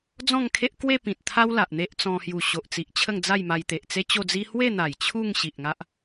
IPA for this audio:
d͡z ɔ̃˥˧ ŋ kʰ e˦ ʔ k w e˥˧ p ĩ˨ t̚ t̪ʰ a˦ w l a˨ ʔ n̪ e˦ ʔ t͡s ɔ̃˧ h j u˨˩ ɕ o˨ ʔ t͡s i˨ ʔ t͡ɕʰ ə˥˧ ŋ d͡z a˥˧ j m a˧ j t̪ e˨ ʔ t͡s e˦ t͡ɕ o˥˧ d͡z i˦ h w e˥˧ n̪ a˨˩ j t͡ɕʰ u˥˧ ŋ ɕ i˨ ʔ ŋ a˦ ʔ

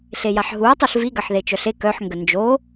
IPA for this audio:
ɬ e j a ħ ɦ u ɐ̯ tˤ u ɬ v i ɡ ɐ ħ ð e t͡ʃ œ ɬ e k œ ħ ŋ ɡ ə n d͡ʒ o

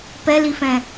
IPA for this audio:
p ɛ l i f ɛ̃

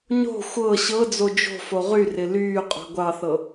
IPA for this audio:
ɲ o̤ xʷ ɤ ɕ ɤ d͡z o d͡ʒ o̤ f o ʁ y r ɪ l yː qʼ o̤ ɡʷ ɑ θ ɤ

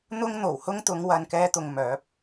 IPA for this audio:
n̪ ʊ˥ ŋ n̪ o˨˩ w h ʊ˥ ŋ t̪ ʊ˨˧ ŋ w ɐ˨ n k ɛː˧ t̪ ʊ˨ ŋ m œː˨˥ p̚

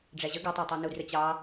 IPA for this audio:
ɖ͡ʐ æ ʑ ə ɡ ɪ tˤ ɑ tˤ u n u d r ə t͡ɕ ɑ

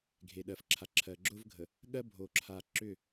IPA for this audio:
ɡʱ e˨ ɗ ɜ˨ f ǁʰ a˨ ǁʰ ɜ˨ ɡ͡ǁ ʊ˦ v ɡʱ ə˨ | ɠ ɜ˦ bʱ o˨ ǁʰ a˨ ǁ ʏ˦˨

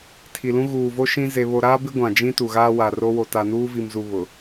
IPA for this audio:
tʰ i˨ l ũ˦ ɣ uː˨ v o˦ ʃ ĩ˦ z e˦ β o˦ ɾ aː˦ b ɪ˦ ɡʷ ã˨ d͡ʒ ĩ˦ t u˨ ɣ aː˦ w a˨ r o˦ w o˨ t a˨ n uː˦ v i˨ m z u˨ β ʊ˨

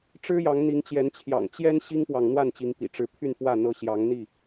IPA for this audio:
ʈ͡ʂ ɻ̩˦ j ɑ˨˦ ŋ n̪ i˨˦ ŋ t͡ɕ j ɛ˨˦ n t͡ɕʰ j ɑ̰˨˩ ŋ t͡ɕ j ɛ˦ n ɕ i˦ ŋ p w ɑ˨ ŋ n̪ w a˥˨ n t͡ɕ i˨˦ ŋ p ḭ˨˩ ʈ͡ʂ ɻ̩˨˦ pʰ y˥˨ n f w ä˥˨ n̪ ɤ˦ ɕ j ɑ˨˦ ŋ n̪ i˥˨

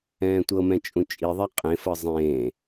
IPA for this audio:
ɛ̃ː tʷ ɤ m ɛ̃ t͡ʃʼ ũ t͡ʃʼ i ðˤ ɛ qʼ ẽ f ɤ zˤ ẽː

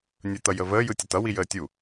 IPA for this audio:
nʲ ɯ t̪ ʌ j ə v əː j ɯ tʲ ʌ t ʌ w i j əː tʲ u

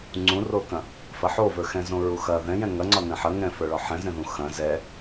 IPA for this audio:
ŋ͡ǀ ũ r o k ɐ̃ | f ɐ ħ o v ə˞ x ɛ̃ z õ ɹ u x ɐ ð ɛ̃ j ɛ̃ ŋ ɐ ŋ͡ǀ ɒ n ɛ̃ ħ ɐ ŋ ɛ̃ f ə˞ ɭ ɒ ħ ɛ̃ z ɛ̃ ð ũ x ɐ̃ z ɛ

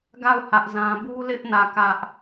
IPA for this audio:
ɡ a˦˨ ʊ̯ h ä˦ ʔ z ã˦ b u˦ l ɪ˦ ʔ n ä˦˨ k ä˦ ʔ

